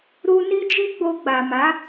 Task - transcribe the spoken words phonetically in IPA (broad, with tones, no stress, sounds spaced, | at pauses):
ɾ u˧ n i˦ d͡ʒ i˦ ɡ͡b o˧ ɡ͡b a˨ m a˨˦